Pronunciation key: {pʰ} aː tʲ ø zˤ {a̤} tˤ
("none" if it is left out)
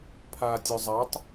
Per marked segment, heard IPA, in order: pʰ, a

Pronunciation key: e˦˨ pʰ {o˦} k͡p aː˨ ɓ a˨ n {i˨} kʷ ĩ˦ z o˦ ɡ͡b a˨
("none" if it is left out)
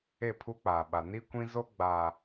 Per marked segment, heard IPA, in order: u˦, i˦

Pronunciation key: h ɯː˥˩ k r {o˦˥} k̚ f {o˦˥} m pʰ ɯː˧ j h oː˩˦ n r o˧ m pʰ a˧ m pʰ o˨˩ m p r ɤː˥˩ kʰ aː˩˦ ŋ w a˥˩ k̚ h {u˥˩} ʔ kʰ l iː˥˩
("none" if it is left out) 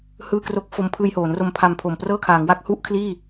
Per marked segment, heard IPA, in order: o˥˩, o˧, u˥˩

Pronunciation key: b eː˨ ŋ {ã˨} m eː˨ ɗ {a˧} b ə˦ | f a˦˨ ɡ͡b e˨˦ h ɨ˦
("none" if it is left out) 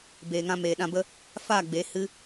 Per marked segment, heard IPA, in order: ã˧, ã˧

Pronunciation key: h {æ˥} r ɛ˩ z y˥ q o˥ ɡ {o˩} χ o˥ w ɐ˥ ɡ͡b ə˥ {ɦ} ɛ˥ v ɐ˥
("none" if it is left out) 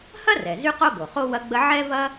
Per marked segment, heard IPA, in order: ɐ˥, o˩, ʕ

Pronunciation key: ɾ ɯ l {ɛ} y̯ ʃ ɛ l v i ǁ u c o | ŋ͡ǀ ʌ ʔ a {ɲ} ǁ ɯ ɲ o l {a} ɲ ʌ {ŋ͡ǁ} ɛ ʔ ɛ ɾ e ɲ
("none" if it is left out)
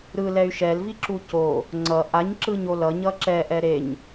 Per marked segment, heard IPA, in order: ɛ, ɲ, ʌ, ǁ

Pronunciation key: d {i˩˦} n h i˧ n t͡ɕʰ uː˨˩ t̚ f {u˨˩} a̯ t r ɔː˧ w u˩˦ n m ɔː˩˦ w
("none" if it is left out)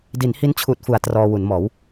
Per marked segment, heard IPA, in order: i˩˦, u˩˦

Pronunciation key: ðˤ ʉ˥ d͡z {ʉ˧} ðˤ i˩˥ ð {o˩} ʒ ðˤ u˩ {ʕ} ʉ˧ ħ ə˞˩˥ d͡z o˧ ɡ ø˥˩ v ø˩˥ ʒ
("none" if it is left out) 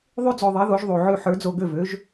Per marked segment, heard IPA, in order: ø˧, o˩˥, ʕ

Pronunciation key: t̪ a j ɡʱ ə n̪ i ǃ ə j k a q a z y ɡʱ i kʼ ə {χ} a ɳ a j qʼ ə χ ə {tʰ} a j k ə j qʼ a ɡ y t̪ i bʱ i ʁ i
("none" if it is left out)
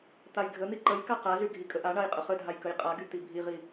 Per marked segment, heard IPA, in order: ʔ, dʱ

